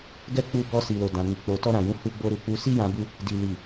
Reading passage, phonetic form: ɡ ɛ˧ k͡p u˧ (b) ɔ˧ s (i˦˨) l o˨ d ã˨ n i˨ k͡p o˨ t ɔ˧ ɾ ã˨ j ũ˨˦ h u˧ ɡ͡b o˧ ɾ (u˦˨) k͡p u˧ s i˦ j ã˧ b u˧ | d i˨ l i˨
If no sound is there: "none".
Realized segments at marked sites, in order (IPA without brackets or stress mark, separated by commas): b, i˨, u˨